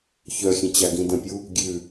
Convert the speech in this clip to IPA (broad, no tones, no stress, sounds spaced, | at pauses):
ç œ xʲ ə̃ t͡ɕ a ɡ ĩ d ə̃ pʲ u | ɡʲ ʉ